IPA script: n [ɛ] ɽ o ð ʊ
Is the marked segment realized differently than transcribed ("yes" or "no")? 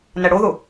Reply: no